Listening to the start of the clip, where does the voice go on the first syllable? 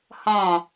falling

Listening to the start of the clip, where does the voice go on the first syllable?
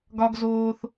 high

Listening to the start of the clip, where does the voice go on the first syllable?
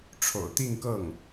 low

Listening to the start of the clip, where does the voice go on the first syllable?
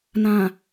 low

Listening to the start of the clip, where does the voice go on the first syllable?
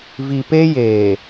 low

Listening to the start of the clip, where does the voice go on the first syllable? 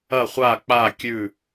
falling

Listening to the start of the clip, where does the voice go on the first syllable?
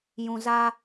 low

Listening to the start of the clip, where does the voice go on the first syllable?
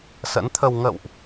rising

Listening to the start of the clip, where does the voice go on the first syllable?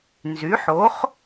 rising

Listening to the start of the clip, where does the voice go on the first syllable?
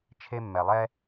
high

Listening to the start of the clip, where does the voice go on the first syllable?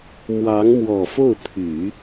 rising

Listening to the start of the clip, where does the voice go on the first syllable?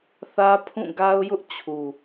high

